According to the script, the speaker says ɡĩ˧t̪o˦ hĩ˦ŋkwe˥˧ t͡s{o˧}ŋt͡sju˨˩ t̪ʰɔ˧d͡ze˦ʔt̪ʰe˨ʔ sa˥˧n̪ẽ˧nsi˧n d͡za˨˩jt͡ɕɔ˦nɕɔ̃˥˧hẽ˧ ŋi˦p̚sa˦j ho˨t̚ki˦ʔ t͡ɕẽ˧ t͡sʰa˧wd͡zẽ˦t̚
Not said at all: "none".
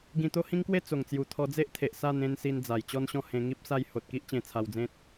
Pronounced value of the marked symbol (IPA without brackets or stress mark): o˨˩